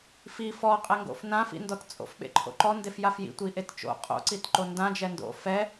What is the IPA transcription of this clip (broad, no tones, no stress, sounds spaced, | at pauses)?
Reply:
f i f ɔ qʼ ɛ ŋ ɡ o̰ f n ã f ḭ n d ɔ t t͡sʼ o̰ f ɓ ḛ ǃʰ o̰ ǃ ɔ n d e f j a f j ḭ tʷ i ʔ e t t͡ʃ o̰ qʼ o̰ ǀ i t ǃ o n d ã d͡ʒ ɛ n d o̰ f ɛ